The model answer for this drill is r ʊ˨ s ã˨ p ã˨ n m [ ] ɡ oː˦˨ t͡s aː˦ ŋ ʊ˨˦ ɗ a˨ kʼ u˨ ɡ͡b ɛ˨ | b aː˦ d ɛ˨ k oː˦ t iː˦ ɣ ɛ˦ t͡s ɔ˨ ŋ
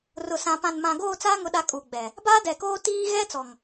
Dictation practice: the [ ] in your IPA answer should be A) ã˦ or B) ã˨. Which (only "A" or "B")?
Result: B